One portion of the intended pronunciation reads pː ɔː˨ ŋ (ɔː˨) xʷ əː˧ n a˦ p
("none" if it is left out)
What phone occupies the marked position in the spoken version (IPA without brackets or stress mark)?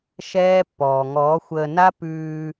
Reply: ɔː˨˦